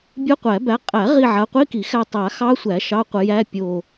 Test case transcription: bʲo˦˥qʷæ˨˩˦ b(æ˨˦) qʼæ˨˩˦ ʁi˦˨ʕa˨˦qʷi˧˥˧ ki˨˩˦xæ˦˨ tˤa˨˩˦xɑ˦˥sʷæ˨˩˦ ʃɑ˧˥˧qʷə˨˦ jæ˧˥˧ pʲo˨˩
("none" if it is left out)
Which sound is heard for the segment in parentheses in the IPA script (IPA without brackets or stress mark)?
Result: æ˨˦